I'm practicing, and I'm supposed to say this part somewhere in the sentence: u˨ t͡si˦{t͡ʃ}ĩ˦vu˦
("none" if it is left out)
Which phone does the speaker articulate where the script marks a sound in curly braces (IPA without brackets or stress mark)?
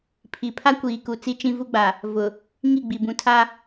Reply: t͡ʃ